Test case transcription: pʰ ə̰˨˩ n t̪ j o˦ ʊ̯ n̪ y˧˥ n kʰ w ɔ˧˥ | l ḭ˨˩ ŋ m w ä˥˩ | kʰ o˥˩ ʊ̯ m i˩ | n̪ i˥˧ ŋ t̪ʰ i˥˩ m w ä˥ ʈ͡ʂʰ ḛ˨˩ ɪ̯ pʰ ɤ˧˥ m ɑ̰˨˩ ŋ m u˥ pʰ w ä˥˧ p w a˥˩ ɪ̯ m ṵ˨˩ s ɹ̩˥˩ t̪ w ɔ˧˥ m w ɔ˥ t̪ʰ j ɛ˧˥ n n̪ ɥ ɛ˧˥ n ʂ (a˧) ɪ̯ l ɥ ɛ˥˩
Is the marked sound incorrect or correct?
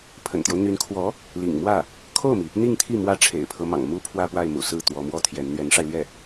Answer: correct